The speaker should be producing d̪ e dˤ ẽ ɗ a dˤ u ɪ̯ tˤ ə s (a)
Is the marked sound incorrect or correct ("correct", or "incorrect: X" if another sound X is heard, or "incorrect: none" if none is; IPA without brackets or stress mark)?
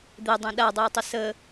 incorrect: ə